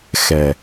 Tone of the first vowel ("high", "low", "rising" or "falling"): low